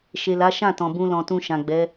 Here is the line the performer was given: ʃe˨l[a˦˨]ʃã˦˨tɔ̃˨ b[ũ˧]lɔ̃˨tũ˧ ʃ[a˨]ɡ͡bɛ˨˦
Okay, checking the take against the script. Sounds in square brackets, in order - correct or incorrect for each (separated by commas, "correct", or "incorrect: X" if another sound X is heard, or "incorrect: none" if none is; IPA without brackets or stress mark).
incorrect: a˨˦, correct, incorrect: ã˨